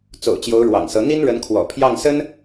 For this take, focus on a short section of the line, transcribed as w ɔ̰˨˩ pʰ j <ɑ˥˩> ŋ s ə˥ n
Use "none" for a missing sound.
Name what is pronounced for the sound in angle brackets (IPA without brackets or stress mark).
ɑ˥˩